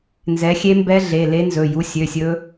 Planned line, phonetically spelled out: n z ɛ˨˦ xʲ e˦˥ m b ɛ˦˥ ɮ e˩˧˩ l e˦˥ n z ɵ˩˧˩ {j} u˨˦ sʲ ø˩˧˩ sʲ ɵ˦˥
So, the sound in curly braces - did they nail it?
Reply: yes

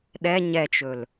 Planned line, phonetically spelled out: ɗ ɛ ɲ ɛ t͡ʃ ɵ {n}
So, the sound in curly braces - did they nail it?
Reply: no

